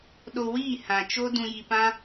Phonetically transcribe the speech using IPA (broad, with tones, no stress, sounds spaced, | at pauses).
ɗ o˧ w iː˦˨ h ã˨ t͡ʃ o˦ d ũ˧ j i˧ p ã˦